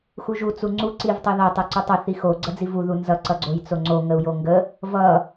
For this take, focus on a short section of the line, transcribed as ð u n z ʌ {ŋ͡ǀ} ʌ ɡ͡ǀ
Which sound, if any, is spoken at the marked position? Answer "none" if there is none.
ǀ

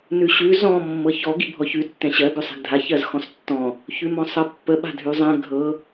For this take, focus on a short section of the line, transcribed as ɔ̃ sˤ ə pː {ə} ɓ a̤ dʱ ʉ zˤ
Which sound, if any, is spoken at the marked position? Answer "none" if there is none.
ə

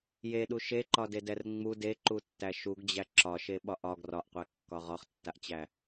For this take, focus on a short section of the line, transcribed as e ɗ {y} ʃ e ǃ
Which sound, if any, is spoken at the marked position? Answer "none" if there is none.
u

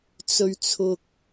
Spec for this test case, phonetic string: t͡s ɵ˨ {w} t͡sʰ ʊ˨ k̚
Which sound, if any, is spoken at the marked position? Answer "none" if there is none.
ɥ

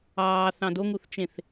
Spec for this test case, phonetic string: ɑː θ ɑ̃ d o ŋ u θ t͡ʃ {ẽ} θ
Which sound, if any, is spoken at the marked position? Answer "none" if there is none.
ẽ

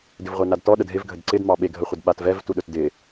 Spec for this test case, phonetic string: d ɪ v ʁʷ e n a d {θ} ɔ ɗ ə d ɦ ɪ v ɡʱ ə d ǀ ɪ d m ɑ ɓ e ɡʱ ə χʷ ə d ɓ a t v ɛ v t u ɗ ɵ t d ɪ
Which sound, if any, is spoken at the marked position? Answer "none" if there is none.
t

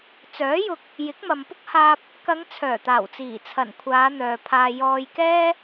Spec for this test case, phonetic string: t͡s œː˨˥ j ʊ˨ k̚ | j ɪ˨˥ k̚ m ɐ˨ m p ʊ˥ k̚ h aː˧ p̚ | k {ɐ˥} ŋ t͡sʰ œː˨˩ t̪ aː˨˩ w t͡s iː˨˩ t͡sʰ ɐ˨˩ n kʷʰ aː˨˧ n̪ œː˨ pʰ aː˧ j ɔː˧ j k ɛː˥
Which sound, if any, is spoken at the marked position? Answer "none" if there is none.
ɐ˨˧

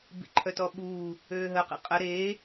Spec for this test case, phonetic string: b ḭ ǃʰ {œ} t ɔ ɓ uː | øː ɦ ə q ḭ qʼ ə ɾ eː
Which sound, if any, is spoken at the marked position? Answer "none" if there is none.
œ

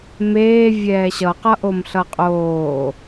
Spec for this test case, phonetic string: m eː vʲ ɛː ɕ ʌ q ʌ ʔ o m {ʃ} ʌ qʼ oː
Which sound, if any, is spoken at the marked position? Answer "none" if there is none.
ɬ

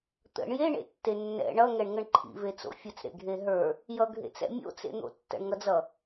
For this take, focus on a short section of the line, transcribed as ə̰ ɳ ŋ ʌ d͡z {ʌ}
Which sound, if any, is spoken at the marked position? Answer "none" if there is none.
ʌ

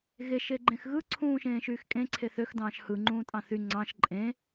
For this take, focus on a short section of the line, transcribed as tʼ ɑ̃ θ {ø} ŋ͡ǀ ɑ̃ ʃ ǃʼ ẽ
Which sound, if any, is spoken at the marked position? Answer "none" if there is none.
y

